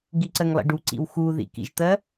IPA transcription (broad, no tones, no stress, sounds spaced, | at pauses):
ɡ i ǀ ɜ ŋ lˠ ḭ ɖ u ǀ ḭ w x u ð ḭ k ḭ ʒ t̪ ɜ